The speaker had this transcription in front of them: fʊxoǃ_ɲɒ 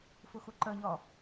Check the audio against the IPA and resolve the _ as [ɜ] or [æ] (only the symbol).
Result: ɜ